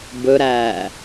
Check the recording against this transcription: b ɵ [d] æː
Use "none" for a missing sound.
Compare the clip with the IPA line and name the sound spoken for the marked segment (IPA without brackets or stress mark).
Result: ɾ